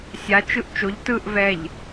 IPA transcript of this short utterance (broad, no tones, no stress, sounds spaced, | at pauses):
sʲ a t͡ʃ ɯ ʔ t͡ʃ o ʎ t ɯ ʔ v ɛ ʎ